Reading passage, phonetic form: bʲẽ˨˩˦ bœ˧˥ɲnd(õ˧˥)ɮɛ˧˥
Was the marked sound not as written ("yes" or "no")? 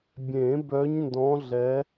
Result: yes